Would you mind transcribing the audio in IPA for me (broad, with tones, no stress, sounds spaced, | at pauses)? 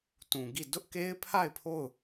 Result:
t ũ˨ ɡ i˦˨ d ʊ˦ ʔ k e˦ ɪ̯ pʰ a˦˨ ɪ̯ pʰ o˦˨ ʊ̯